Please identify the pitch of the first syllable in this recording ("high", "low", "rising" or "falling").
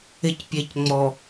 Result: low